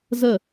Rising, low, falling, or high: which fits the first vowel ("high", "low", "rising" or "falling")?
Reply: falling